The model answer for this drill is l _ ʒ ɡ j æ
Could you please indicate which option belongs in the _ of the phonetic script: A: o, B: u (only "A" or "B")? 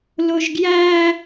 A